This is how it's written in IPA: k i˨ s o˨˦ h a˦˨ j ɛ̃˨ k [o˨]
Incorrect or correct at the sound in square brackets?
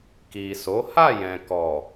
incorrect: ɔ˨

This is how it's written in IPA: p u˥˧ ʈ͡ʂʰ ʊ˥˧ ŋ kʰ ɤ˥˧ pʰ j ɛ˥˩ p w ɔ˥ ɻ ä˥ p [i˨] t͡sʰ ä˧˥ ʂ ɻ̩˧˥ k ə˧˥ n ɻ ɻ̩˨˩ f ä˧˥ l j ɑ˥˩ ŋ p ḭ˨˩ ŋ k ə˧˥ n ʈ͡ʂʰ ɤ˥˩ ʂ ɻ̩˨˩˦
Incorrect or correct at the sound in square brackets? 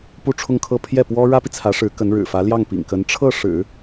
correct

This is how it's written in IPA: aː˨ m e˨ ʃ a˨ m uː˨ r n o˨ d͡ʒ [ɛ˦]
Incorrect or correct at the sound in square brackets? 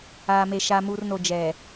incorrect: ɛ˨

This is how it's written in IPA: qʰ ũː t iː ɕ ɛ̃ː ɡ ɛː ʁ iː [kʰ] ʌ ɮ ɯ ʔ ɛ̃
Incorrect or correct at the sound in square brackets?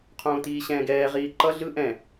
incorrect: ǃ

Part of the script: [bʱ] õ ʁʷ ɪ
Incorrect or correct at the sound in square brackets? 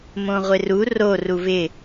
incorrect: m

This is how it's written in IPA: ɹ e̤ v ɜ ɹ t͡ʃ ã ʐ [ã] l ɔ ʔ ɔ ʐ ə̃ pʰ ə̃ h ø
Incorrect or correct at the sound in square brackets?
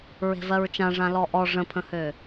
correct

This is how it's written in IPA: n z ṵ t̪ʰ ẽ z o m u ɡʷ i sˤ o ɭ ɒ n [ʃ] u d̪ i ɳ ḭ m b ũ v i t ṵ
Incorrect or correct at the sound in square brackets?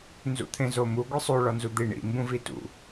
incorrect: z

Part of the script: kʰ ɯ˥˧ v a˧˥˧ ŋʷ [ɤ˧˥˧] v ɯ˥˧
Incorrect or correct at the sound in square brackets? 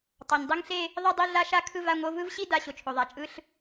correct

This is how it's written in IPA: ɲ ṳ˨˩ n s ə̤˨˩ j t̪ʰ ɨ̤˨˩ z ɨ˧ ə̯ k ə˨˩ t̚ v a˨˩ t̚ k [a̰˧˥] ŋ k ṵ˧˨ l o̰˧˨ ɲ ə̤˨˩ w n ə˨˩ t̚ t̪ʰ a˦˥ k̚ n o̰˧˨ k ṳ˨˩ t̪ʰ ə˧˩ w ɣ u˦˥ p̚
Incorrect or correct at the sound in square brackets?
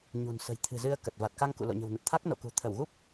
incorrect: a˧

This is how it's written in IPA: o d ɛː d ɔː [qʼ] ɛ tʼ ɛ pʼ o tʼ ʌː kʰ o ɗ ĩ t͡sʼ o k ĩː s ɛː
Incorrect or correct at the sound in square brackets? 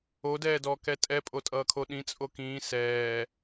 incorrect: k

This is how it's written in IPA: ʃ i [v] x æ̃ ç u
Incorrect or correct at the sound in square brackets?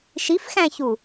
incorrect: f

